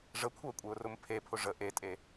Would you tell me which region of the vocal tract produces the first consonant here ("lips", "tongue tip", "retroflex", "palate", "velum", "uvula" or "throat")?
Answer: retroflex